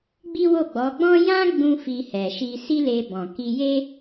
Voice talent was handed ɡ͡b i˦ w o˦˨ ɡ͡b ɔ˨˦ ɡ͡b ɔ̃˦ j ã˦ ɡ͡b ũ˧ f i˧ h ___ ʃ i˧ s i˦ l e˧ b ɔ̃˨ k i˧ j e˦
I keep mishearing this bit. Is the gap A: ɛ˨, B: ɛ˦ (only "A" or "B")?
A